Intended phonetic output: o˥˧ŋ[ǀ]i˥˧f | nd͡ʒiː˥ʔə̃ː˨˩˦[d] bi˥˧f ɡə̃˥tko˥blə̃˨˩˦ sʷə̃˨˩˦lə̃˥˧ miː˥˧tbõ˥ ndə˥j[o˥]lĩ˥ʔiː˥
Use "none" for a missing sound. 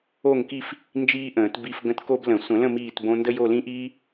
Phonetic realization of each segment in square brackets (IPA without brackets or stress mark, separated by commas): k, t, o˥˧